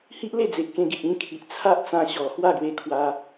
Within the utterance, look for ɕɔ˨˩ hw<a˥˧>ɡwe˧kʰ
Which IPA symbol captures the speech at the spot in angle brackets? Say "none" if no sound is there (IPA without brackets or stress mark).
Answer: a˥˧